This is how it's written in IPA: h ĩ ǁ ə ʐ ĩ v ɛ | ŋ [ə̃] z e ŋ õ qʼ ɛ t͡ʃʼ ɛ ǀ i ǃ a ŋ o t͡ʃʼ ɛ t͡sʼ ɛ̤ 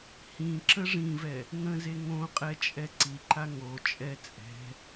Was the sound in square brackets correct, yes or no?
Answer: yes